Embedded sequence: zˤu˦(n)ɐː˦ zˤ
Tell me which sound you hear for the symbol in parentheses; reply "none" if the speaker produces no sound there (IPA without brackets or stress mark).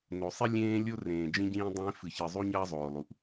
ɲ